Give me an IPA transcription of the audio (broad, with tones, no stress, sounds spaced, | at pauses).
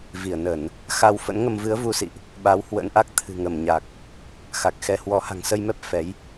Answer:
v i˧˩ ə̯ n ə˧˩˨ n | x a˧ w f ə̰˧˥ n ŋ ə˧ m v ɨ˨˦ ə̯ v u˧ s ḭ˧˨ ʔ | ɓ a˨˦ w h w ə̰˧˥ n ʔ a˦˥ k̚ t̪ʰ ɨ̤˨˩ ŋ ə˧˩ m ɲ a˨˩ k̚ | x a˨˩ k̚ x ɛ˨˦ h w ɔ˨˦ h a̤˨˩ ŋ s ə˧ j m ɛ˦˥ p̚ f ɛ˨˦ j